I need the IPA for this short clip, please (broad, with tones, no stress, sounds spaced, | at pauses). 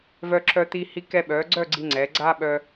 v œ˧ ǁ œ˧ t̪ i˧ h i˧ k ɛ˧ ɓ œ˩˧ ɡ͡ǀ œ˥˧ ɡ͡ǀ i˧ ŋ͡ǀ ɛ˩˧ ɡ͡ǀ a˥ ɓ œ˧